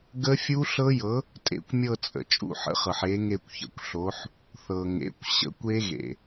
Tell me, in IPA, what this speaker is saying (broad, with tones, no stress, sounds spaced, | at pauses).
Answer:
ɡ ə˦˥ fʲ u˦˥ ɬ ɤ˦˥ j ɤ˨˥ | tʼ ḛ˦˨ kʷ mʲ ɤ˦˨ t͡sʼ ə̰˩ t͡ʃʼ ṵ˦˨ ħ ə̰˨˥ χ ɤ˩ ħ e˨˥ ŋ e˦˨ kʷ ç ə̰˩ kʷ ɬ o˨˥ ħ | θ ɤ˩ ŋ ḛ˩˧˩ kʷ ɕ ə̰˦˥ kʷ e˦˥ ɣ ḛ˩